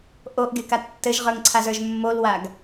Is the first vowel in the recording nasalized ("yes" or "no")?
no